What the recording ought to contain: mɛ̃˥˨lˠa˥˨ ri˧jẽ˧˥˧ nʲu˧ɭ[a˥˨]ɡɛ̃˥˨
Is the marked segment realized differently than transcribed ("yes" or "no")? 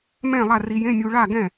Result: no